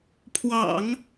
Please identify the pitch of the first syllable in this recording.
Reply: low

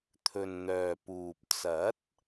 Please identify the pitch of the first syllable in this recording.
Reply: low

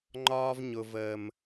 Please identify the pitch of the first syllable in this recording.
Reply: high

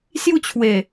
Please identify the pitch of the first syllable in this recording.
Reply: falling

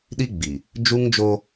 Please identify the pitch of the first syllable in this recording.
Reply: high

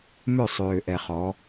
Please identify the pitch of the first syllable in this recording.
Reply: falling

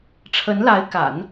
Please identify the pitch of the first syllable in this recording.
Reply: rising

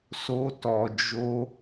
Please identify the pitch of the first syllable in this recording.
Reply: high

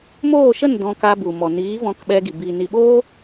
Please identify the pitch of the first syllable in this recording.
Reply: falling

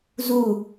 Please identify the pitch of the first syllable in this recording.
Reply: falling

